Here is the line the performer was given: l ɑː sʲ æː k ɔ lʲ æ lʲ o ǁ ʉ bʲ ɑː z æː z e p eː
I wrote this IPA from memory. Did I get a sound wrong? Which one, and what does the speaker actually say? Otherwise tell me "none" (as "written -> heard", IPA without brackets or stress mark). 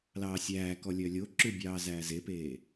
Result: æ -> œ